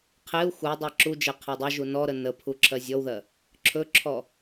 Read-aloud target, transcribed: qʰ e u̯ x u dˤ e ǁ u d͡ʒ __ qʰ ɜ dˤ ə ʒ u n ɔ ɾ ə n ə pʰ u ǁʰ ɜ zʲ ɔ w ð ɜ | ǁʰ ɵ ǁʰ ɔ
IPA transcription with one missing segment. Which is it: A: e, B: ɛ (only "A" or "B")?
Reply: A